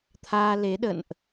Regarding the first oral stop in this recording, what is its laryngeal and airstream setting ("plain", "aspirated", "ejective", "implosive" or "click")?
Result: aspirated